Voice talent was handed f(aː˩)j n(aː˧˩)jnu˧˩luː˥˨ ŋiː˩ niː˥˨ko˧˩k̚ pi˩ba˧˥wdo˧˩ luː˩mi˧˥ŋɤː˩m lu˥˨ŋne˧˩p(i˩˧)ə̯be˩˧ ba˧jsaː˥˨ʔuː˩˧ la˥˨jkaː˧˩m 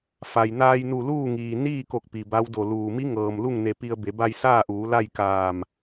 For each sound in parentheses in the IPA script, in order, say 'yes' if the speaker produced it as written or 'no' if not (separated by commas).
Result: no, no, no